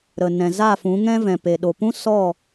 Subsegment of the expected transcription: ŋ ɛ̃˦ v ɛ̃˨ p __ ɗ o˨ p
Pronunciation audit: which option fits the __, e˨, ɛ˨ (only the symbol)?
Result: e˨